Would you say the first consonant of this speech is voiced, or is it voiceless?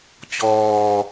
voiceless